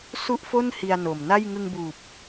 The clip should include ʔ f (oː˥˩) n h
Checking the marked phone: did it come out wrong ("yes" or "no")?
yes